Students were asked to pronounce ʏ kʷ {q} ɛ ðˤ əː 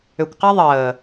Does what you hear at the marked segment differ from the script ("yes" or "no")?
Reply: no